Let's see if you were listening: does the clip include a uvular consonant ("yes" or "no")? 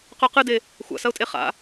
yes